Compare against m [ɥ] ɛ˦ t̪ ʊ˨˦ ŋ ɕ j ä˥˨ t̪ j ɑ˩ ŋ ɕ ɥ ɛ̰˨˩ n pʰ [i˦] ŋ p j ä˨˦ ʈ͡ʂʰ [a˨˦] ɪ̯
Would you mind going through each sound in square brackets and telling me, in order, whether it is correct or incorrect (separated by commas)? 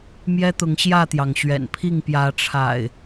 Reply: incorrect, incorrect, incorrect